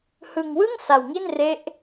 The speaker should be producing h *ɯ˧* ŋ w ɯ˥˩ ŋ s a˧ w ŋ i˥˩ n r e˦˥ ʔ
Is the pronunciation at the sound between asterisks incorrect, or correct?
correct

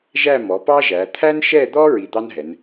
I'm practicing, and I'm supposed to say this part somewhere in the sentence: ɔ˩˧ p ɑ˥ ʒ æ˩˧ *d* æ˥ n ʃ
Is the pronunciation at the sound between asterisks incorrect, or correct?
incorrect: t̪ʰ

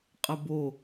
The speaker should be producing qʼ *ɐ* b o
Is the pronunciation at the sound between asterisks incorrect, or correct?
correct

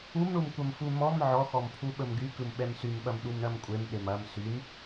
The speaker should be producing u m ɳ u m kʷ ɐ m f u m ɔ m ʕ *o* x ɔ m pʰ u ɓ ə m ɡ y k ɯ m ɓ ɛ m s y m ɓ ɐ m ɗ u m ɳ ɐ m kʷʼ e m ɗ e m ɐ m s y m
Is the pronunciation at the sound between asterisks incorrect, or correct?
incorrect: ɔ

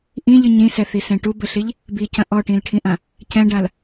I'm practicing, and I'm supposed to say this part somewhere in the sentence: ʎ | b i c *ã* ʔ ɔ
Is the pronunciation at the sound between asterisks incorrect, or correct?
incorrect: ɐ̃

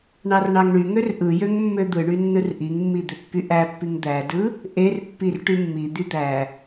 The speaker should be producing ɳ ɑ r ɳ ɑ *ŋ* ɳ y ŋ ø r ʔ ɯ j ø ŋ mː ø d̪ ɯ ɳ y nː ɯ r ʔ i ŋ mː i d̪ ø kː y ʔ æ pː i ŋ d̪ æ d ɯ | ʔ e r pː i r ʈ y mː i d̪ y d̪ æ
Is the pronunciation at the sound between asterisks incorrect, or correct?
correct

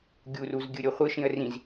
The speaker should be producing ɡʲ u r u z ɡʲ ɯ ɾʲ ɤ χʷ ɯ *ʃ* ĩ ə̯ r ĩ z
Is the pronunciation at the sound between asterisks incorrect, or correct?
correct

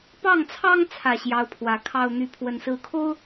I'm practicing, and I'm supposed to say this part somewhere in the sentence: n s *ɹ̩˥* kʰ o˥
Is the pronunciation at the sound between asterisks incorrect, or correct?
incorrect: ɹ̩˧˥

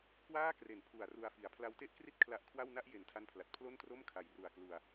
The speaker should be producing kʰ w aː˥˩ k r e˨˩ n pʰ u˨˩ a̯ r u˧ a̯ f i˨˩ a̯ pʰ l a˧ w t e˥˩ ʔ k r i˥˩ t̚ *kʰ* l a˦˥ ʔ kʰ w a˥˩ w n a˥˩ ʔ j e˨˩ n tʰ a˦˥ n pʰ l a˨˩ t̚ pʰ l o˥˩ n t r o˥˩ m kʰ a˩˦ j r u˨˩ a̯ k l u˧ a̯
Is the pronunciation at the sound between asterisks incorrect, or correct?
correct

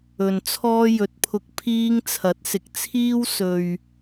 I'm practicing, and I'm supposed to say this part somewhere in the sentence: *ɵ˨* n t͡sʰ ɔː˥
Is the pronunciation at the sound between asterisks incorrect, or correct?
correct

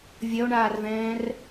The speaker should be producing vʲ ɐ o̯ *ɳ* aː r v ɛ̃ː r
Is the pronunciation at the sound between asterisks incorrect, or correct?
correct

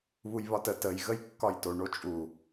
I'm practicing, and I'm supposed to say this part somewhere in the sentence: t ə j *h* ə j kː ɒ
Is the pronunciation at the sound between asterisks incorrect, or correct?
incorrect: ɣ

